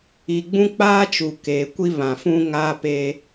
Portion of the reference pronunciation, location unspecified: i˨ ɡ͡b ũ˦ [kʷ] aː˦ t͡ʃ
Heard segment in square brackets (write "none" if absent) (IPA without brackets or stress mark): k͡p